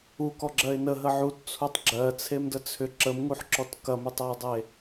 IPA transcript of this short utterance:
ukɔɡ͡ǁɜɪ̯ nəɦə ʕutt͡sʰutˤ ɡ͡ǁɜt͡sʰemdə t͡sʰʏ ǁəmŋuħǁɔt kɐmetˤɜɪ̯dˤe

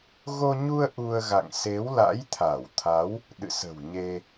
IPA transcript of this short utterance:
ɣo˧ɲu˧ə̯ ʔu˧ə̯ ɣa̰˧˨ŋ se˨˦wla̰˧˥jt̪ʰa˧˩wt̪ʰa˨˦w | ɗɨ̰˧˨sə̤˨˩w ɲe˧

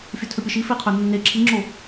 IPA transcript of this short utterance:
fʲɵtʰɵpʲəʃi feqʰɵnːe ǁʰiŋ͡ǁo

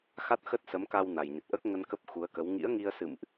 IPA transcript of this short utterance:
xa˦˥t̚xə˦˥t̚sə˨˦mka˧w na˨˩jɲə˨˩t̚ʔəː˦˥k̚ ŋə˧nkə˦˥p̚ xu˨˦ə̯kə˨˦w ŋḭ˧˥ə̯ŋi˧ə̯sɨ̰˧˨mʔ

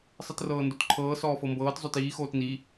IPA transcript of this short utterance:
sˤɯtrɤːndotǃʰɤː sɔːfɤmbɤːt zˤotiː xoːtni

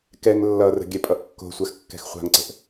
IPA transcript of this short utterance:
kɛŋ lːʌrə̤ ɡʲɛpʼʌʔkːo̤sʷax kːɛ̤xχʷa̤ŋǀə̤ʔ

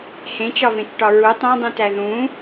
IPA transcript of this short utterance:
hẽt͡ʃɒvẽt͡ʃʈɒ ɹu tˤõdˤũtæ ðũ

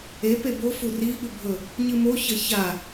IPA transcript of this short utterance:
e pebofu ri ɠʉbʱɵ | ɲɨmoçɐ ça

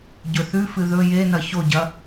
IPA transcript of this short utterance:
ɟɵθʉfɨ ðɵ jenɐ çoɟɐ

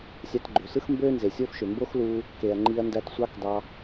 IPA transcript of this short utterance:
sʲɑ˧tɡ͡ǃø˩sɯ˥x mbøː˥nze˩sʲoː˥fʃø˩ mbo˥xluː˧ | ke˩ɐ̯ŋ͡ǃi˧ɐ̯ndæ˧tsʷɑ˥k dɑ˧

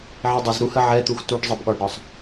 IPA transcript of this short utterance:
ʕidˤəz ɾuhə ʕɛt̪ux tuɖ zˤəbɠɒɖɾɒsˤ

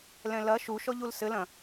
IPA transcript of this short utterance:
lɛ̃lɐ ʃuʃɔʎul sɘlɐ̃

